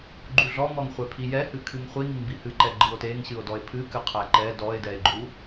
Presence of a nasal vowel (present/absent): absent